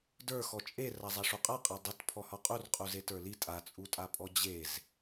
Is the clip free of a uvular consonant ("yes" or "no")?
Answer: no